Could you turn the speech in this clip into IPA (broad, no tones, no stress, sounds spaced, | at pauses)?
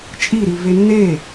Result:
t͡ʃʼ i ɾ i v e nː e